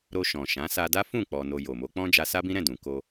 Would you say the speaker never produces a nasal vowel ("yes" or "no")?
no